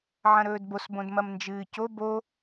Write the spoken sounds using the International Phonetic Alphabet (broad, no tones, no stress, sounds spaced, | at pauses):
ʕ ɐ̃ ɾ ɵː d b o s b õ d m ɐ m n d͡ʒ ɨː c o b o